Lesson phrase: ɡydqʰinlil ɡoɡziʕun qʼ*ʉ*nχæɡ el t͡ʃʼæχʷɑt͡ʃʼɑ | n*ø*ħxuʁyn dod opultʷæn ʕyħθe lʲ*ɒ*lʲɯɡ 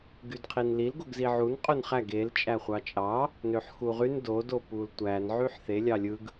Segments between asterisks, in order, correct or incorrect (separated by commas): incorrect, correct, incorrect